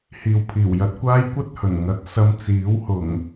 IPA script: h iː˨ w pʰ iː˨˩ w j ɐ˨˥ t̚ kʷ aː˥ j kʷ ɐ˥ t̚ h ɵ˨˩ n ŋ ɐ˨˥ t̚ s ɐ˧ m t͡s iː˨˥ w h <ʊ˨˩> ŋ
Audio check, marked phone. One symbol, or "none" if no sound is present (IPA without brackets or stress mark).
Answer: ʊ˨˩